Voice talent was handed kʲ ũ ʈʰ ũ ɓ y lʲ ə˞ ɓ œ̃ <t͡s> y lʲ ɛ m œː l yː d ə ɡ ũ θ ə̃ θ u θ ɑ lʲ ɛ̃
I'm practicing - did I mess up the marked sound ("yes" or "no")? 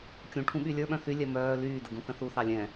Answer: yes